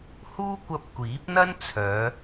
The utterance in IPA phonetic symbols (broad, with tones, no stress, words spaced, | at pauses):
huː˥kʷɐ˧p̚ kʷiː˨˥p̚n̪ɐ˥nt͡sʰœː˨˧